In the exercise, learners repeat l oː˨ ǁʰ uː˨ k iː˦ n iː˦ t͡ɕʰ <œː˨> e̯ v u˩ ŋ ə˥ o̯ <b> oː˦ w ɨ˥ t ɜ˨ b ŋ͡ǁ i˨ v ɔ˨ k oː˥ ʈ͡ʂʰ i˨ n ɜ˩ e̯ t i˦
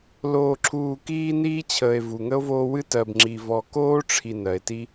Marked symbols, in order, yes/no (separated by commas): no, no